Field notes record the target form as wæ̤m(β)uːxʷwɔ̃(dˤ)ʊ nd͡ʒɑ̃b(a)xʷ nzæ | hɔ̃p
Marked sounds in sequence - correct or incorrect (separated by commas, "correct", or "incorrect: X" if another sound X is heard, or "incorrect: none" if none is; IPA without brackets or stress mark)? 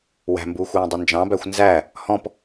incorrect: b, correct, incorrect: æ